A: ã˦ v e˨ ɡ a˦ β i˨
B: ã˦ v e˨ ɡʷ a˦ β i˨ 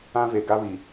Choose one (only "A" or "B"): A